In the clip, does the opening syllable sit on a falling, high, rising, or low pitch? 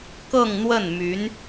falling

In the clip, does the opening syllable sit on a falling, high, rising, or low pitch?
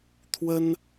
high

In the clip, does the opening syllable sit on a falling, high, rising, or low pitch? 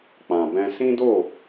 low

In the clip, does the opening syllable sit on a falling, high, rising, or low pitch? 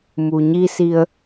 low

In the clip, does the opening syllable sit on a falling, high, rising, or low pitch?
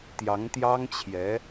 rising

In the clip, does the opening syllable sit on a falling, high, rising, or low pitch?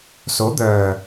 rising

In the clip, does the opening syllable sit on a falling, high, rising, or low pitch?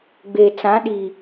low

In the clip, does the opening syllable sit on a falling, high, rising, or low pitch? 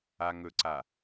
low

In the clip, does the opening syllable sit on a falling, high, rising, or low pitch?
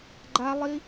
high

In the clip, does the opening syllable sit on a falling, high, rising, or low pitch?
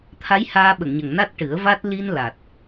rising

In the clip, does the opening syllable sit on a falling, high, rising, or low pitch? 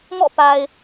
falling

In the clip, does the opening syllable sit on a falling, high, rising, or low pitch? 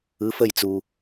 rising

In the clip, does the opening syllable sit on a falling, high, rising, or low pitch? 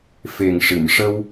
low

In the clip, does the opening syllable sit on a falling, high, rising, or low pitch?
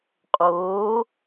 rising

